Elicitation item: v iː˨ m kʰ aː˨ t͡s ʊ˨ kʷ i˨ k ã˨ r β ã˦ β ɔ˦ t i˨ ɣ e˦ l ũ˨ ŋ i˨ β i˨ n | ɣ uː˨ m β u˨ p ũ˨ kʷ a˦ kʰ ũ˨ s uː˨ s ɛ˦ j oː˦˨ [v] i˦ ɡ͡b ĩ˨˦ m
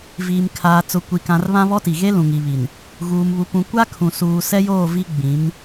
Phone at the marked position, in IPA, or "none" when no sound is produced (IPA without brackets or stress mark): v